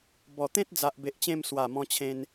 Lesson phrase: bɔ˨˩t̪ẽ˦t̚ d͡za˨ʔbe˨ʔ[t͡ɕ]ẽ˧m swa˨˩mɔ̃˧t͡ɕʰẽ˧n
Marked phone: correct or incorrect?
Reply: correct